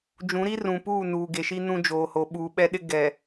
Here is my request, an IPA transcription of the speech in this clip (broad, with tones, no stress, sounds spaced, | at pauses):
d͡ʒ ũ˨˦ ɾ i˦ r ũ˨ p uː˦˨ n uː˨ ɡ e˨ ʃ i˦ n ũ˦ d͡ʒ oː˨ h o˨ ɓ uː˨ ɓ ɛ˦ ɗ ɪ˦ ɡ ɛ˨